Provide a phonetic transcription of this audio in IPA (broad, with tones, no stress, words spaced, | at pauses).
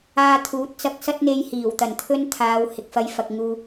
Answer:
aː˧t̪ʰuː˨˥t̚t͡sɐ˧k̚ sɐ˥t̚n̪e˧jhiː˨˩wt̪ɐ˨˩n t̪ʰɵ˥nt̪ʰaː˨˧w hɪ˨k̚fɐ˧jfɐ˨k̚ŋuː˧